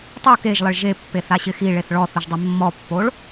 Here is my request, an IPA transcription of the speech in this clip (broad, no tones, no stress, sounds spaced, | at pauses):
tˤ o k e ʒ lˠ ɪ ɭ ʒ e pː e θ a ɕ ɪ x i ɭ e θ ɭ ɔ θ ʊ ʒ dˤ e mː ɔ pː o ɭ